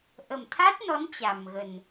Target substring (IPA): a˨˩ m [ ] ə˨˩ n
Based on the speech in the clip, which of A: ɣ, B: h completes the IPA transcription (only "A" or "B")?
A